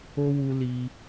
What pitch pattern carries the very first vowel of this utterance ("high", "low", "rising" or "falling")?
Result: high